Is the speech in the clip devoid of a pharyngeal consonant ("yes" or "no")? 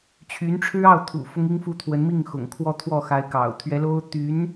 yes